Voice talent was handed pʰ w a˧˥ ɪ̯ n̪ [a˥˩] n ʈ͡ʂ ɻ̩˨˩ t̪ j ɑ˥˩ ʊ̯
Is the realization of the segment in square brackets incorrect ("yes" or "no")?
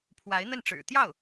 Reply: yes